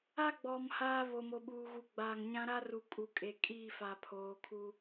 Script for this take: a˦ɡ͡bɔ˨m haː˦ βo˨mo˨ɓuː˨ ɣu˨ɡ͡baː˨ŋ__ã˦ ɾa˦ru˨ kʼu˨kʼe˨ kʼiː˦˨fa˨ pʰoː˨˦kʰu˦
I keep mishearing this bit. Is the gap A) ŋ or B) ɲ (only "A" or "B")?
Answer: B